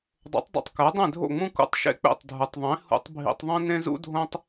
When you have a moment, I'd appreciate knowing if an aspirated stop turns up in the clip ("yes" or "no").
no